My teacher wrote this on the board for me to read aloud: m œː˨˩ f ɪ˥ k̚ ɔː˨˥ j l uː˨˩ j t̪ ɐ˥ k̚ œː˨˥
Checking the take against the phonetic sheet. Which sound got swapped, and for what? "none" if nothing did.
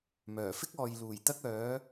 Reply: ɔː˨˥ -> ɔː˨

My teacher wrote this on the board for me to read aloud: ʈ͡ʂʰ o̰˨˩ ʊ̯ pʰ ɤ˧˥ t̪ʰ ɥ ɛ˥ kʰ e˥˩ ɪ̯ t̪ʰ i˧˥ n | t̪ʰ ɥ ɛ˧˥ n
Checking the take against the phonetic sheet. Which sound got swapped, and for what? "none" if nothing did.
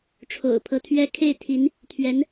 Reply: none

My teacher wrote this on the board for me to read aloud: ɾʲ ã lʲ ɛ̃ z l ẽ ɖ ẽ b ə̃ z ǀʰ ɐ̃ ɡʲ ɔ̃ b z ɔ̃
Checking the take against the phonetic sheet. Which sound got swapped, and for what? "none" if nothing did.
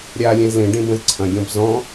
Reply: ã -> a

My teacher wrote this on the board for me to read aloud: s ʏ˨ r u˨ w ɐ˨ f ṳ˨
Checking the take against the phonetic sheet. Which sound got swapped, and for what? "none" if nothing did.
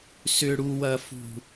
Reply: r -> ɽ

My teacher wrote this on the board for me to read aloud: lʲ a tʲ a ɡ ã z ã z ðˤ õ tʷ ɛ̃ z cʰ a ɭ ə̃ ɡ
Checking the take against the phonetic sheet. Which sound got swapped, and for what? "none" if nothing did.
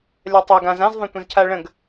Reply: tʲ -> tˤ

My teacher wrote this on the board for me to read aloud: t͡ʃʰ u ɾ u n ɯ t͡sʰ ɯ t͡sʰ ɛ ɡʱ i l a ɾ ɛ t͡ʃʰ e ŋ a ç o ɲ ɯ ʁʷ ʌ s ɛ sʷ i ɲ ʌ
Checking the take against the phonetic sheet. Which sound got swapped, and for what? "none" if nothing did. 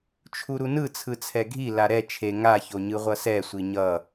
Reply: none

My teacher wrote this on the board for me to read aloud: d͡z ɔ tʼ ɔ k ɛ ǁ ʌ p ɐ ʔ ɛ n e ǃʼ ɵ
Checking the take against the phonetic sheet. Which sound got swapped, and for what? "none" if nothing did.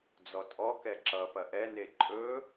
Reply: none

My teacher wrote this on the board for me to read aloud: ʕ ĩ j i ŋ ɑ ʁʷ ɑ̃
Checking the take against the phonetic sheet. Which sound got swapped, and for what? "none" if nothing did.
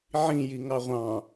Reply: none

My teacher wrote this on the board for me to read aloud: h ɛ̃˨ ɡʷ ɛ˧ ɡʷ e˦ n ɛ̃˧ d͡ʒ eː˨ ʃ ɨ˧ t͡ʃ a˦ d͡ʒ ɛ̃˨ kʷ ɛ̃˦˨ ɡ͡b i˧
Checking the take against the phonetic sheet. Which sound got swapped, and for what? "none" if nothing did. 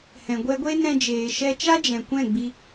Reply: ɨ˧ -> ɛ˧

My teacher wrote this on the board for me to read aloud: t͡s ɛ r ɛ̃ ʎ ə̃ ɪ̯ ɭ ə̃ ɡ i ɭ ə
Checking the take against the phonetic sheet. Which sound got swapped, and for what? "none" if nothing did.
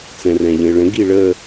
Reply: ɛ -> ɛ̃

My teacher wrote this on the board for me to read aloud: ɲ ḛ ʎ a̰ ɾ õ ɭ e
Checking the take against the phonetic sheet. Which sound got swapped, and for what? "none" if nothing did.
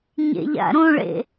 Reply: e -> ḛ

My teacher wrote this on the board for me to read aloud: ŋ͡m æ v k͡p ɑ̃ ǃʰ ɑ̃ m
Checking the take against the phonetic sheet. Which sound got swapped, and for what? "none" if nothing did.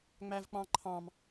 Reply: none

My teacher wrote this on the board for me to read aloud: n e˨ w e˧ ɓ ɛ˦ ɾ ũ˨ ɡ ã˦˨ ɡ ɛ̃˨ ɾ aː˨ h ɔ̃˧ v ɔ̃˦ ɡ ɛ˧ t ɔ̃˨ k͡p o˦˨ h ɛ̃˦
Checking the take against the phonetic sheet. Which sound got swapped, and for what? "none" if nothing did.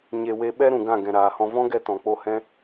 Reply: n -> ɲ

